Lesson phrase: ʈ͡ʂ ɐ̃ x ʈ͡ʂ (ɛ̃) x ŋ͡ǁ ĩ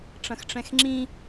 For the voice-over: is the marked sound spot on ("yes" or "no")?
yes